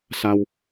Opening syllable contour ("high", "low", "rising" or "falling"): high